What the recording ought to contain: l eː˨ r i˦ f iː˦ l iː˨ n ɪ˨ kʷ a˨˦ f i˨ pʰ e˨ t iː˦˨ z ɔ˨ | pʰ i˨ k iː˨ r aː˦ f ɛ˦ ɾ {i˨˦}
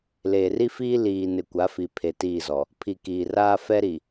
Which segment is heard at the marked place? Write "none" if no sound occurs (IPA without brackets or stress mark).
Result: i˨